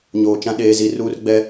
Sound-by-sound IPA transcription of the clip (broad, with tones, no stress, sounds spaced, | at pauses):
ɲ oː˨ t͡ʃ ã˦ ɗ eː˨ z i˨ r uː˦ r ɡ͡b ɛ˦